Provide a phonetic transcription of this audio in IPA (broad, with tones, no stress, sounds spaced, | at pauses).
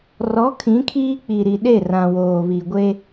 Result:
r ɔ˨˦ kʰ ĩ˨˦ kʰ iː˦ k͡p i˨ ɾ i˨ ɗ e˦˨ r ã˨ w oː˨ β i˨ ɡʷ e˦